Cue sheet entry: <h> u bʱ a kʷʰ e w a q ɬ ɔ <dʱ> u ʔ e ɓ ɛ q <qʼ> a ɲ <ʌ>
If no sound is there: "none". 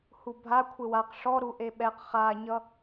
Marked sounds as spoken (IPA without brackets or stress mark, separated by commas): h, ɾ, χ, ʌ